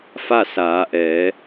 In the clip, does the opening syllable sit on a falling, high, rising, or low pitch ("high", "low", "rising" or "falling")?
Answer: falling